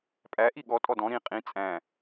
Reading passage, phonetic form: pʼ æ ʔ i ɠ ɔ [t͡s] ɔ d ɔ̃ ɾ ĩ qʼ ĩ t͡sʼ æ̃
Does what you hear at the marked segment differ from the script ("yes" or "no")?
yes